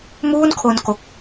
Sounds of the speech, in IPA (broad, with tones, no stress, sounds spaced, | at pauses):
m uː˥˩ n kʰ o˧ n k o˨˩ k̚